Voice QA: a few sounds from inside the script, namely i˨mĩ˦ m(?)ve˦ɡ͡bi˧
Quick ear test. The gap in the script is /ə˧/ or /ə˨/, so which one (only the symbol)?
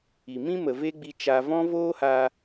ə˨